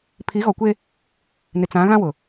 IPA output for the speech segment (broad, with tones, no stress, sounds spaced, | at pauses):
pʰ i˨˦ ɣ ɔ˨ kʷ e˦ | n ɪ˨ t͡s ã˨˦ ɣ ã˦ w ʊ˨